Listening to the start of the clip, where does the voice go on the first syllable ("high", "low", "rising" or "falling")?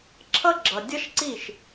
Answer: high